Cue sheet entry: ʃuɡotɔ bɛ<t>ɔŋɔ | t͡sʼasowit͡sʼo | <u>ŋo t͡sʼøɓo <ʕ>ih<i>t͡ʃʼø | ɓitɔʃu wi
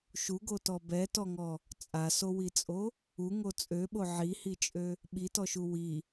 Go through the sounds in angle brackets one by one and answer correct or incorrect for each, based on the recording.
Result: correct, correct, correct, correct

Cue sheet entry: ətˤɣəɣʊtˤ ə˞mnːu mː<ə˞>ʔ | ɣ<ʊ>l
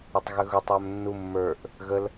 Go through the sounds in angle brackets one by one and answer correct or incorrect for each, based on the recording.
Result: correct, incorrect

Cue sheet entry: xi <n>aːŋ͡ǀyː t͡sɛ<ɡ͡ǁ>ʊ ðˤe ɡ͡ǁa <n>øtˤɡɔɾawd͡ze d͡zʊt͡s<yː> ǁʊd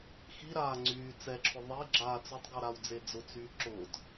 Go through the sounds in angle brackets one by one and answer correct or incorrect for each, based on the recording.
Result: incorrect, incorrect, incorrect, correct

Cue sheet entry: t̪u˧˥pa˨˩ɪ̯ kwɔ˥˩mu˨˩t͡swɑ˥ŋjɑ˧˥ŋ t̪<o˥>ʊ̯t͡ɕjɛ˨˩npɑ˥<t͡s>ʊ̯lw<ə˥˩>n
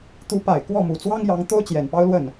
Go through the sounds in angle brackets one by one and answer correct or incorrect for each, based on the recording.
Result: correct, incorrect, correct

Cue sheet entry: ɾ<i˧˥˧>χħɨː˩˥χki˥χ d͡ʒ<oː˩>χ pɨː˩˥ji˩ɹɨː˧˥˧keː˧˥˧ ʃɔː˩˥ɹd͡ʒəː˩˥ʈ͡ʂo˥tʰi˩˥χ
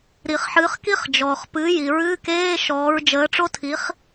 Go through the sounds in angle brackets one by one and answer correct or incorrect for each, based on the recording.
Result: incorrect, incorrect

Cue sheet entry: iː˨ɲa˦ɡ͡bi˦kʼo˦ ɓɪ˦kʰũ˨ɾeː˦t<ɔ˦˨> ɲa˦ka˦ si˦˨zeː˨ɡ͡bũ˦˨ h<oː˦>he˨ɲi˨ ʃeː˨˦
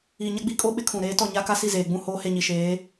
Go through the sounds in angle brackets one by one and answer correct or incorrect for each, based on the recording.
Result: correct, correct

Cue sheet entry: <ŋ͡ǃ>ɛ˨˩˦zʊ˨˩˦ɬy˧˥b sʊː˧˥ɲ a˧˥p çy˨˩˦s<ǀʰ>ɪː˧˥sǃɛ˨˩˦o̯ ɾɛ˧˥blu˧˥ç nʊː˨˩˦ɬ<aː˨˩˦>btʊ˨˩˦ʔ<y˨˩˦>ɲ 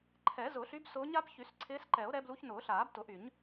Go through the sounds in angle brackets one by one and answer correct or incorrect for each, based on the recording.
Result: incorrect, correct, correct, correct

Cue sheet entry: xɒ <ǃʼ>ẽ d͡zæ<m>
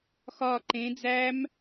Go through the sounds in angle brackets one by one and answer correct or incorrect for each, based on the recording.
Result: incorrect, correct

